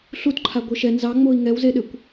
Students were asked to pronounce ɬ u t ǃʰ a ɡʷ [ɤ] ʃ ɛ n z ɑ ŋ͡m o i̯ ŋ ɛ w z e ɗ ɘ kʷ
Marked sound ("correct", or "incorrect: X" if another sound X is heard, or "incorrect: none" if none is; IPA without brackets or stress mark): correct